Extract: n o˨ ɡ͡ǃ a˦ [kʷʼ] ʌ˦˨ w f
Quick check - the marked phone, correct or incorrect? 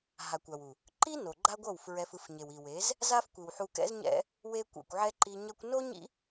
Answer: incorrect